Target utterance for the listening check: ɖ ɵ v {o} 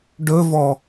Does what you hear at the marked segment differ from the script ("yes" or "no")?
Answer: yes